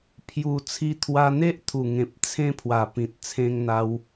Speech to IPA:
pʰ j u˨˩ t͡sʰ i˧ t̪ʰ w a˧ n̪ e˦ ʔ t̪ʰ u˨˩ ŋ ẽ˨ p̚ t͡sʰ ẽ˧ pʰ w a˨˩ p ĩ˨ t̚ t͡sʰ ẽ˧ ŋ n̪ a˧ w

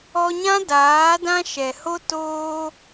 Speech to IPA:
ɔ˧ ɲ ã˦ d aː˨˦ d ã˦ ʃ ɛ˨ h o˦ t oː˧

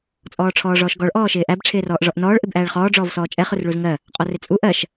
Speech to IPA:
t͡sʼ ɔː ʈ͡ʂʰ ɔː ʐ ɔː ʃ ɡ ɔ ɭ ʔ ɔː ʃ ɪː ʔ æ b ʈ͡ʂʰ ɪː r ɔː ʔ ʐ ɔ ʔ n ɔː ɭ ʔ ɪ b ʔ æː ɭ χ ɔː ɖ͡ʐ ɔː v s ɔː t͡ʃʼ ɛ χ ʊ r ɭ u z ŋ ɜ | qʼ ɔ r ɪ t͡sʼ u ʔ ɜ ʃ

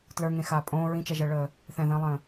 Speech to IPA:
t l ə˞ ŋ ẽ x aː pʼ õː ɹ ĩ t͡ʃ ɛ ʒ əː ɭ əː | θ ɛ̃ ð ə̃ː lˠ ə̃ː

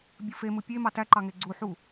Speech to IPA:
bʲ ɯ f e m ɯ pʲ e m ɑ t æ ǃ ɑ ŋ e ɡ͡ǀ u ħ u

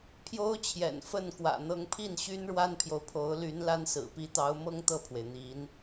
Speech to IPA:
pʰ j o˥ ʊ̯ t͡ɕʰ j ɛ̰˨˩ n f ə˥˩ n k w ä̰˨˩ n̪ ɤ˧˥ ŋ pʰ i˥˩ n ɕ y˥ n ɻ w a˥ n pʰ j o˨ ʊ̯ pʰ o˧˥ ʊ̯ l y˧˥ n l a˥ n s ɹ̩˨˩ p i˧˥ t̪ ɑ˧˥ ʊ̯ m ɤ˥ ŋ t̪ ɤ˥˩ pʰ w e˩ ɪ̯ n̪ i˧˥ n

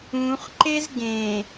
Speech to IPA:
ũ χ ǃ e z ɡ ẽ

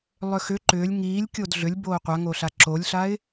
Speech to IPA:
lˠ ʏ x ʏ ǃ ʏː lʲ ŋ iː lʲ kʲ o d ɮ ʏ lʲ b oː qʷ a ŋ o ɬ a ǁ o lʲ ɬ a ɪ̯

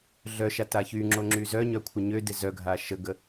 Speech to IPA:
ɮ œ ʃ a t a ç y ŋ͡ǁ o ŋ͡ǁ y z œ ɲ œ kʷʰ ə ɲ ø d e z œ ɡʱ a ʃ ə ɡ ə

